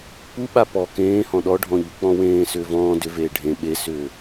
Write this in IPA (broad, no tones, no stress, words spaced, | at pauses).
puɓa pɔ kẽːhɔ̃ ɗɔɖʱɔ̃ ʎuk͡pɔ̃wẽːsʏː vɔ̃ː dʏveː ɖʱẽ ɓesʏː